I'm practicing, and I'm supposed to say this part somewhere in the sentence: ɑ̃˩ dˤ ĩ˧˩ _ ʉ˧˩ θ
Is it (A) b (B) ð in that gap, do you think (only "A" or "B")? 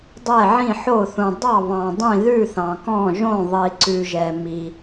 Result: B